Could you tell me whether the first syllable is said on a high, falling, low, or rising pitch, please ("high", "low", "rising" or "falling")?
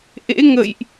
rising